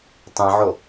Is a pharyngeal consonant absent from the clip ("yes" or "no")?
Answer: no